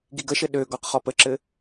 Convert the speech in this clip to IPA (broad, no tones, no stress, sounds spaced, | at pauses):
ɡ i ɡ ə ʃ ɘ ɗ ø ɡ ɔ q χ ɔ p ə ǁ ɘ